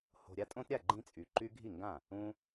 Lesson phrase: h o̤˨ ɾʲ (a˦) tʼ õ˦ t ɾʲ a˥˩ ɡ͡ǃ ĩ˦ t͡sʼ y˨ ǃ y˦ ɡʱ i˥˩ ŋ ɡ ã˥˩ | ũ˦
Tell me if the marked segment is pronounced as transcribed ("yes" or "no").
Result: yes